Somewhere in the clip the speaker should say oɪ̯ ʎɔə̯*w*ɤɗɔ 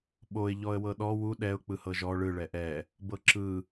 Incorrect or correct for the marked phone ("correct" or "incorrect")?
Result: correct